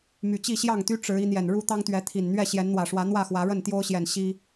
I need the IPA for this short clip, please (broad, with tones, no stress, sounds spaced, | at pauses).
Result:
m y˨˩ t͡ɕ i˥˨ ɕ j ɑ˥˨ ŋ t̪ y˦ ʈ͡ʂ ɻ̩˨˦ i˨˦ n̪ j ɛ˨˩ n ɻ u˥˨ t̪ ɑ˦ ŋ t̪ ɥ ɛ˨˦ t̪ʰ i˨˩ n n̪ ɥ ɛ˥˨ ɕ j ɛ˨˦ n n̪ w ä˨˩ ʂ w ä˨˦ n̪ w ä˥˨ x w ä˨˦ ɻ ə˥˨ n t̪ j o˦ ʊ̯ ɕ j ɛ˨˩ n ɕ i˦